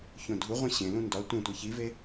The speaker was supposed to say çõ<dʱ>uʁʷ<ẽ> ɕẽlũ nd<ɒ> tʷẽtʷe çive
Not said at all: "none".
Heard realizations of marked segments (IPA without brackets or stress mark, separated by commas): dʱ, ĩ, ɒ